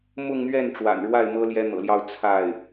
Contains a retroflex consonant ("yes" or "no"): yes